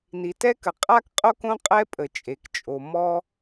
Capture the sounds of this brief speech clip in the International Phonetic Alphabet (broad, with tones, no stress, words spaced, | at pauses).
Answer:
ni˩tɛ˥kə˩ qʼa˥kqʼo˥kõ˥ qʼɛ˥pʼə˩t͡ʃʼe˩kt͡ʃʼo˩ mɔ˥